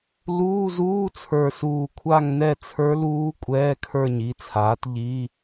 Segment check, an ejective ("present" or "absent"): present